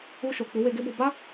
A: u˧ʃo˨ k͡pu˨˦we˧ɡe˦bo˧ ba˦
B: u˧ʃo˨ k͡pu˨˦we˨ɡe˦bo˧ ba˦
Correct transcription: A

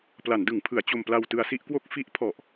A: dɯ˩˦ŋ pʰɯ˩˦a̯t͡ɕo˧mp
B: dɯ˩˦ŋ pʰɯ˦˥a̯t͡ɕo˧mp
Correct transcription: A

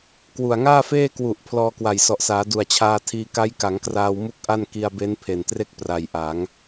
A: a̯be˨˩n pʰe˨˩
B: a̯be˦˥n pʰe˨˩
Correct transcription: B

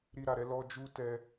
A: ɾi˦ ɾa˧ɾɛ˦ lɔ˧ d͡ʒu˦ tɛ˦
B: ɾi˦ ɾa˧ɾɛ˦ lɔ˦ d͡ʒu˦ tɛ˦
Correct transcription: B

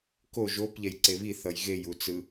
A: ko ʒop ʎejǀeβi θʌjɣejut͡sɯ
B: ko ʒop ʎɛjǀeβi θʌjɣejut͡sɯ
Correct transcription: B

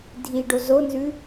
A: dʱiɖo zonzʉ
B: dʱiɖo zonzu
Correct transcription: A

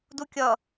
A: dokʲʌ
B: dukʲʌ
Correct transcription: B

